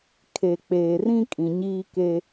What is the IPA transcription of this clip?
kʰ e˨ k͡p eː˨ r ĩ˦ kʼ ĩ˨ ɲ iː˦ k e˦

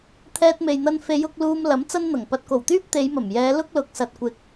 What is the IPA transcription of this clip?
t̪ʰ ɛː˧ t̚ m e˨ j n̪ ɐ˧ n f e˨˧ j ʊ˧ k̚ l uː˧ m l ɐ˨˥ m t͡s ɐ˥ n n̪ ɐ˨˩ ŋ p ɐ˨ t̚ k o˨˩ w t̪ yː˥ p̚ t̪ e˨˧ j m ɐ˨˩ m j ɛː˨˧ l ʊ˥ k̚ l ʊ˨˥ k̚ s ɐ˨ t̚ kʷ ɪ˨ k̚

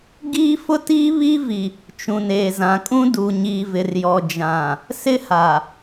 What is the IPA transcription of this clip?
ɡ iː˦ f ʊ˦ t iː˦ β i˦ v i˨ | t͡ʃ ũ˨ n eː˨ z ã˨ kʼ ũ˦ d u˨ ɲ iː˨ v ɪ˨ r j ɔ˨ d͡ʒ ã˨ | s ɪ˦ h a˨

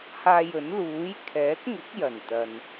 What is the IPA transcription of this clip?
h aː˧ j ɵ˨˥ n l uː˨˥ j kʰ ɛː˨˥ k̚ ŋ ʊ˨˥ k̚ j ɐ˨˩ n t̪ ɐ˨ n

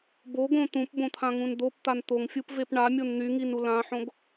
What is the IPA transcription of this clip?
b o ɡ õ t̪ ũ p b õ t̪ʰ ã ŋ ũ n d̪ o p t̪ a n t̪ o ŋ fʲ u p v e p ɳ a mʲ o n n̪ y ŋ i n u l ã ħ õ ɡ

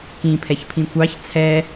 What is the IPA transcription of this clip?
k ĩ pʰ ɛ ç pʰ ĩ kʷ ɑ ç t͡sʰ ɛ

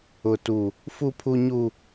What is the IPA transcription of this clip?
ʊ˦ t u˦ | f u˦ pʰ u˦ ɲ u˦

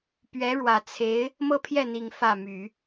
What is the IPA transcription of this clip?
p ɥ ɛ˧˥ ɻ w ä˨˩ t͡sʰ e˧˥ ɪ̯ | m ɤ˥˧ pʰ j ɛ˥˩ n̪ i˨˩ ŋ f ä˥˩ m y˨˩˦

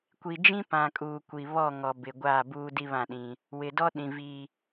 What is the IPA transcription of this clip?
kʷ i˨ d͡ʒ ĩ˦ p ã˨ kʼ uː˨ kʷ i˨ β ɔ˦˨ ŋ ɔ˨ b ɪ˨ ɡʷ aː˦˨ b uː˦ d i˦ β ã˦˨ ɗ ĩ˦ | w ɪ˨ d ɔ˦ ɗ ĩ˨ v i˦

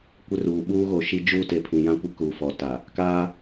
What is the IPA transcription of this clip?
kʷ ɪ˦ r uː˨ ɓ uː˦ ɣ o˨ ʃ i˦ d͡ʒ uː˦ t e˨ pʰ ĩ˨ j ã˦ kʷ e˦ k uː˨ f ɔ˨ t a˨ | k aː˦

